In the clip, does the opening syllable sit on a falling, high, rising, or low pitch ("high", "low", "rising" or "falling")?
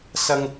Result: low